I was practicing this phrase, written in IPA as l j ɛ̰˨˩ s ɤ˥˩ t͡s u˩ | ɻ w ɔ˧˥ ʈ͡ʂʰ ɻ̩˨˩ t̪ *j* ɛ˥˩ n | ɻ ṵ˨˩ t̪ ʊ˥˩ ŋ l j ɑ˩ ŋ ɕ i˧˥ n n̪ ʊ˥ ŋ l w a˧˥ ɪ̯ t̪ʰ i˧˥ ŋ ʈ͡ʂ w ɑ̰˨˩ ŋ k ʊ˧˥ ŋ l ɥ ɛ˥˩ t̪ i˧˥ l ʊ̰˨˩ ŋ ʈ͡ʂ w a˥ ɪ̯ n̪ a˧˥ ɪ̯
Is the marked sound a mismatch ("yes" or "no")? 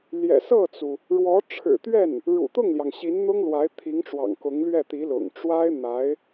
yes